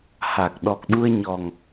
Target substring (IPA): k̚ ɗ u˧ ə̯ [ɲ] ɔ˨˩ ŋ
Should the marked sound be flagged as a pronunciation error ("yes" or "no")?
no